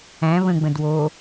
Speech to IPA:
æ̃ β ə̃ ɡ͡b ə̃ d w o

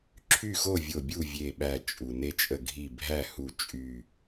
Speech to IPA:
ǁʰ y˥˨ x o˥˨ vʲ o˧˩ bʲ u˥˨ vʲ e˧˩ ɓ æ˧˩ t͡ʃʼ u˩ n e˥ t͡ʃʼ ə˥˨ ɡʱ i˥˨ bʱ æ˥˨ h u˧˩ t͡ʃʼ y˧˩

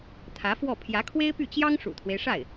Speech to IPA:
t̪ʰ ä˧˥ f w ɔ˥˩ pʰ j ä˧˥ kʰ w e˥ ɪ̯ p y˥˩ t͡ɕ j ɑ˥ ŋ ʂ ṵ˨˩ t̪ʰ w e˦ ɪ̯ ʂ a˥˩ ɪ̯

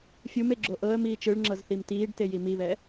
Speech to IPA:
fʲ u m e ɡ͡ǁ o ʔ ɤ ə̯ m iː t͡ʃ ɯ ɭ ŋ͡ǁ ɤ z θ i m t iː ɖ t e j i m i β ɛ

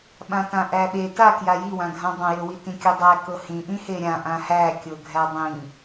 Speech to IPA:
ɓ ã t ã ʔ æ ɓ e t a k j a j i w ã ɡʱ ã dˤ ã j ɤ w i t ĩ kʲ u dˤ æ k ɤ h ĩ ʔ ĩ h e ɾʲ ã ʔ ã h æ kʲ ɤ ɡʱ æ dˤ ĩ

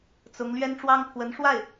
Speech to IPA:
t͡s ʊ˧˥ ŋ l ɥ ɛ˥ n ʈ͡ʂ w ɑ˥ ŋ pʰ w ə˧˥ n ʂ w a˥˩ ɪ̯

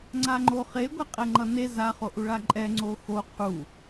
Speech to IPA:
ŋ͡ǀ a ŋ͡ǃ o χ e ɡʷ ɛ qʼ ɛ ŋ͡ǃ ʌ n e z a χ o ʔ u ɭ a ǃʼ ɛ ŋ͡ǀ o x o qʰ u

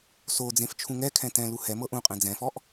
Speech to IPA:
s o d͡z ẽ f t͡ʃʰ ũ ŋ ɛ kʰ ɛ̃ t ɛ̃ l u h ɛ m ɤ ʔ ũ qʼ ɛ̃ d͡z ɛ̃ f ɔ ʔ

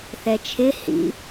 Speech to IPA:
θ ɛ t͡ʃʰ ɪ h ḭ

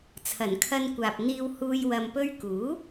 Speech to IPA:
t͡sʰ ɐ˨˩ n kʰ ɐ˧ n kʷ aː˨ p̚ n̪ iː˧ w h uː˧ j w ɐ˨ m p ɵ˧ ɥ k uː˨˥

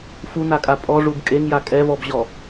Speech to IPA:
f u n̪ a kʼ a pʼ ɔ ʐ u b kʼ e ŋ j a kʼ ɛ v ɔ b ʑ ɔ

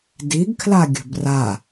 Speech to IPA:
d i ɡ kʰ l a ɡʲ ə̤ b r a

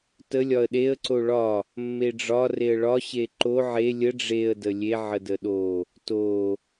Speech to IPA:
t ə lʲ ɒ ə̯ ɗ e ə̯ ǀ o ɭ ɒ | mː e ɖ͡ʐ ɒ r e ə̯ ɭ ɒ ɕ e ǃ o ʕ e lʲ ə ɖ͡ʐ e ə̯ d ə lʲ e ʕ ə d ə ɗ o | t o

